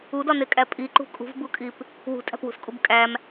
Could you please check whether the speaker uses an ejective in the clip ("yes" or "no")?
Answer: yes